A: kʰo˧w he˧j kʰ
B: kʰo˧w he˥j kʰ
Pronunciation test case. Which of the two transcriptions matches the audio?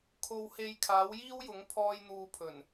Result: A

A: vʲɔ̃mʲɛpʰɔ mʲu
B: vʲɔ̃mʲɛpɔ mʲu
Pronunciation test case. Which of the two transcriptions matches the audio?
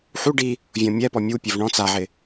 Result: B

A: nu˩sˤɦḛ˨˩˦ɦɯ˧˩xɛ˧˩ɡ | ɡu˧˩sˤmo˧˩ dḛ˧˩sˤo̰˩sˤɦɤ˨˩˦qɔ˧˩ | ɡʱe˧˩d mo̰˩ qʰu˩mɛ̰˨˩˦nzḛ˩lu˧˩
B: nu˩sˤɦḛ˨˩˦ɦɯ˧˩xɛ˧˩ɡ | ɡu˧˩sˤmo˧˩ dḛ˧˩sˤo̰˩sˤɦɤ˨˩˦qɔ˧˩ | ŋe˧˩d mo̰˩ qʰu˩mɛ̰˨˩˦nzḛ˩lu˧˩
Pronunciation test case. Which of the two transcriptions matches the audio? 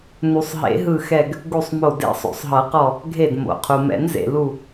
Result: A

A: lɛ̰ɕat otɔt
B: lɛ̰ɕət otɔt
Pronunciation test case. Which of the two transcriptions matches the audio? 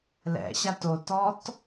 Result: A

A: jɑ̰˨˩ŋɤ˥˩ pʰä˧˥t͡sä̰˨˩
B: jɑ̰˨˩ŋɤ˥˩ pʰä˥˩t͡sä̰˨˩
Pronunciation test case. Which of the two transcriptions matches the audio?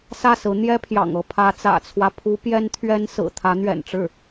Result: A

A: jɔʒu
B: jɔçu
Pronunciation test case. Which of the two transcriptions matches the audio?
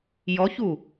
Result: B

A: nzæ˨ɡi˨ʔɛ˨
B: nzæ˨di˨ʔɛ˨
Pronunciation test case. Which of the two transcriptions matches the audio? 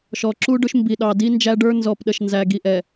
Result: A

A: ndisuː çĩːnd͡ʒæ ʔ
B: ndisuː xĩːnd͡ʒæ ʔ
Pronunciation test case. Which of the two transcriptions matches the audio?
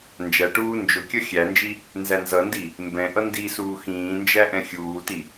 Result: B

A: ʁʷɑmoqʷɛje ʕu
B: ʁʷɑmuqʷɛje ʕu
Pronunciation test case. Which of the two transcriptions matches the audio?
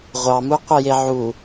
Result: B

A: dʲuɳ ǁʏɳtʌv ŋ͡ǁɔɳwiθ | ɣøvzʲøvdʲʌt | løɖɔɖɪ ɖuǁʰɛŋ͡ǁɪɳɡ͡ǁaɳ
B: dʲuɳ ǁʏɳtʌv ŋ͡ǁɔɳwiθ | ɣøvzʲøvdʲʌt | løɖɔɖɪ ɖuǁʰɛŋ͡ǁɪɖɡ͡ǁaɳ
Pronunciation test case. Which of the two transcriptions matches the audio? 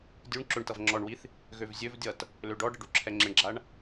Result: A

